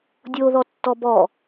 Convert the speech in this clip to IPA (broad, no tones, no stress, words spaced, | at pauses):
dʲoðɔtːɔ bɔ